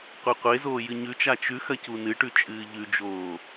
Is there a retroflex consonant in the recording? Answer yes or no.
yes